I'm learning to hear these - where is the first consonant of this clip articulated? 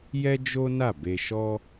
palate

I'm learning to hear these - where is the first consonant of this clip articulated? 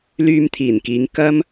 tongue tip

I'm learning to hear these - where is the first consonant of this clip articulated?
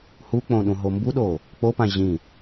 throat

